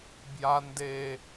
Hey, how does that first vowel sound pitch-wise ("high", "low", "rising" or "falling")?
low